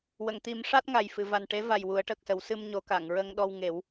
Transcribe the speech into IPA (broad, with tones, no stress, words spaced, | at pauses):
wə˨˩˨ŋt̪i˨˩˦m ʂa˦˥t̚ŋa˨˩j fɨ˨˩˨va˨˩nʈe˧˥va˨˩j wu˨˩˦ə̯ʈəː˨˩k̚sə˨˩˦w sɨ˧mɲo˨˩˦ka˨˩˨ŋ ɹə˧ŋɗɔ˧w ŋe˨˩˦w